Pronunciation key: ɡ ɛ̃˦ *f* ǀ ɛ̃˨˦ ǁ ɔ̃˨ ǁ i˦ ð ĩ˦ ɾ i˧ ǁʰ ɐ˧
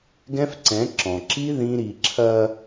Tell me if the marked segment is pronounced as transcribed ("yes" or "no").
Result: yes